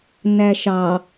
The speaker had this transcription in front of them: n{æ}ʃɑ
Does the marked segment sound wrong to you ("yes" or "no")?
no